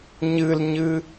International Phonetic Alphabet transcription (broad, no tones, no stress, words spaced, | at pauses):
ɲɨlɲɨ